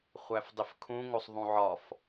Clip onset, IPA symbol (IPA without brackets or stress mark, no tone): χʷ